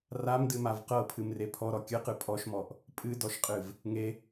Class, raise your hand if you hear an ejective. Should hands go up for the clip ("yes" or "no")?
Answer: yes